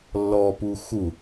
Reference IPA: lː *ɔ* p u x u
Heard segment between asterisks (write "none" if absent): ɔ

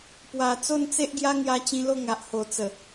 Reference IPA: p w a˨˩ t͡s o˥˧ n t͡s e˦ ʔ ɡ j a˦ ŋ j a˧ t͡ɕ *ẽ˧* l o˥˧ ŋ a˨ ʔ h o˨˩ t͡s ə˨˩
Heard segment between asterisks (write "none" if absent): ĩ˧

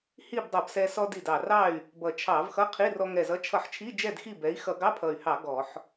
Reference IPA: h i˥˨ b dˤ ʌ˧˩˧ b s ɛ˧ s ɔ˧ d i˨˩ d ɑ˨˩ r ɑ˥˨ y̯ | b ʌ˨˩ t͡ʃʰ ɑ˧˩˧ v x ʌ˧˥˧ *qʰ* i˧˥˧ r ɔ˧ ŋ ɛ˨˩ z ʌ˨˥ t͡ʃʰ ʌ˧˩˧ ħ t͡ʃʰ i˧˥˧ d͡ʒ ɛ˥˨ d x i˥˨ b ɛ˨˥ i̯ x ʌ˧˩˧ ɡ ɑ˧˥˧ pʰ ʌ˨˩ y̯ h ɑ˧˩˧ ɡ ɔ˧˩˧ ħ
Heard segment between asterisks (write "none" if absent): qʰ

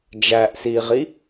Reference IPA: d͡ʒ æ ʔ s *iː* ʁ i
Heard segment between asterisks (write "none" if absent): iː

